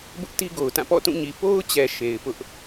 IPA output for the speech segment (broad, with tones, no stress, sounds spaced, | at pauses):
b ʊ˦ ʔ t i˦ ɡ o˨ ʊ̯ t ã˦˨ p ɔ̰˦˨ t ũ˦˨ ɲ i˨ p o˦ ʊ̯ t͡ɕ ɛ˨ ʃ e˨ ɪ̯ p ʊ˦ ʔ